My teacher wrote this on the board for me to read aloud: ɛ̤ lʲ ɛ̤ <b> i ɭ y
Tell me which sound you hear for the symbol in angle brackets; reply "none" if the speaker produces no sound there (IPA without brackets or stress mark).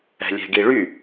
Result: ɡ